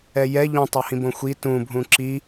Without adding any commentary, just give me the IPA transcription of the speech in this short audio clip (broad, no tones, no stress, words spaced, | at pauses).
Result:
ɛjɛ ʎũtˤohĩ bõxʷi tũbʱũ ǁi